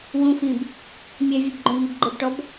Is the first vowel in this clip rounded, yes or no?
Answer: yes